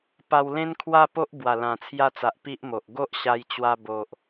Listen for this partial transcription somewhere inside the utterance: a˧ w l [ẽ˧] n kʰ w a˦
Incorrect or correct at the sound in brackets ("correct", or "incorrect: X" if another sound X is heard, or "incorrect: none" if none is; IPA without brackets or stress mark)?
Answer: incorrect: ẽ˦